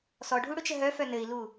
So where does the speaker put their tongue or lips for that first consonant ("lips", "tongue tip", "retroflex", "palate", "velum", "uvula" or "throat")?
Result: tongue tip